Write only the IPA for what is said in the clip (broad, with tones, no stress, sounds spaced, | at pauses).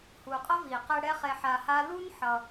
h u˨ qʼ ʌ˦ v i˨ q ɛ˧ ɽ ɛ˦ χ e˧ ħ a˧ h a˦ l u˦ n ħ ʌ˧